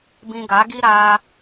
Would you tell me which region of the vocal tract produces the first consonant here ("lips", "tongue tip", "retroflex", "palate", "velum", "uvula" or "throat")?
lips